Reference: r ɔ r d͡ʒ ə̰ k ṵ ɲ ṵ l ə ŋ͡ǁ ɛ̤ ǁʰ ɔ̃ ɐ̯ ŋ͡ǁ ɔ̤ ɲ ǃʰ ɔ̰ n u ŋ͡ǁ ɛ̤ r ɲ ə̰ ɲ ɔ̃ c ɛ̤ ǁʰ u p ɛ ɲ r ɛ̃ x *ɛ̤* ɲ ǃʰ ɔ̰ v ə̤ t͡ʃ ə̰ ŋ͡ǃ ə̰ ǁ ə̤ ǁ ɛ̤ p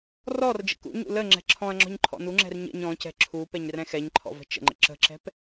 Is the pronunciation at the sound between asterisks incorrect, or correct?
incorrect: ɛ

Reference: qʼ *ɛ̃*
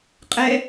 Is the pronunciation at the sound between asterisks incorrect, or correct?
incorrect: ɛ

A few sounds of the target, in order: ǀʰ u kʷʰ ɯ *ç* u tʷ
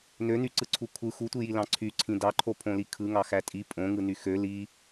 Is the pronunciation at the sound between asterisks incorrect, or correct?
incorrect: x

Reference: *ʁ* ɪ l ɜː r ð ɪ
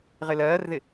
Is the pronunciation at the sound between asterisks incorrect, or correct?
correct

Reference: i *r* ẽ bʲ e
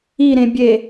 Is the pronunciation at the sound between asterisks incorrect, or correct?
incorrect: ɾ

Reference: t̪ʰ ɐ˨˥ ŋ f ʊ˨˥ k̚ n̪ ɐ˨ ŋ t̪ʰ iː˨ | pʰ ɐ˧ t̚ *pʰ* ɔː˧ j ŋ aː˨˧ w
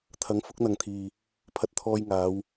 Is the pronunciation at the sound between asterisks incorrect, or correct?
incorrect: t̪ʰ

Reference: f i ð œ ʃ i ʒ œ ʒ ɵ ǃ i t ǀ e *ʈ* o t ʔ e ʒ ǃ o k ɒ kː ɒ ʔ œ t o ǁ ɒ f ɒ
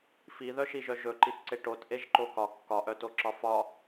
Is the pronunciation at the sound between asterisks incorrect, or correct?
correct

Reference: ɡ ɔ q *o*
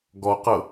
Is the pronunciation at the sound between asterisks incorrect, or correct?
incorrect: ɤ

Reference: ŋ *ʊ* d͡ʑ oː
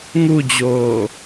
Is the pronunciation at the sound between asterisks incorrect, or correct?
incorrect: u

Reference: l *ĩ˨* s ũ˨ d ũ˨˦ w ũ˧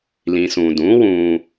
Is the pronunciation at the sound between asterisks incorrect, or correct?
correct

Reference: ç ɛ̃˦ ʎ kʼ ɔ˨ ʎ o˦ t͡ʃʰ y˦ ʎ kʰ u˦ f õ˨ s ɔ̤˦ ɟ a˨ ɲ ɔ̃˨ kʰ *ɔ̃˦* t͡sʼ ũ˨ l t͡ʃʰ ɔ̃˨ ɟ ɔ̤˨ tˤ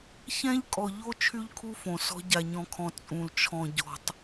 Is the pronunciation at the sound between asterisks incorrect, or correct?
incorrect: ɔ̃˨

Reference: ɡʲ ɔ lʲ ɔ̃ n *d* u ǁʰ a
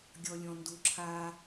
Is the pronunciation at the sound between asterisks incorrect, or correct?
correct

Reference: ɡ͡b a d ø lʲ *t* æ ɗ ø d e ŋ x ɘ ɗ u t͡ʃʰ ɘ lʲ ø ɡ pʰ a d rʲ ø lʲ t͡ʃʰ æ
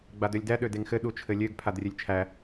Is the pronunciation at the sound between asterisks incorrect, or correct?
incorrect: d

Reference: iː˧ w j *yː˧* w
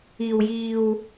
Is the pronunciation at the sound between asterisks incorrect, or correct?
incorrect: iː˧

